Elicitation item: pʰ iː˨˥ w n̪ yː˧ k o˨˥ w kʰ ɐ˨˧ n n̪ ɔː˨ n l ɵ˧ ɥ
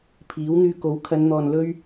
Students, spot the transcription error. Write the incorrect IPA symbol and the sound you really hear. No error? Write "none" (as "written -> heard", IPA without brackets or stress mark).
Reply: none